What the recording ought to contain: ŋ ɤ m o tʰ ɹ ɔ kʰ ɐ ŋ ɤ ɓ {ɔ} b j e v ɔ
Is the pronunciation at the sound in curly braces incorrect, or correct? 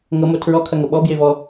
correct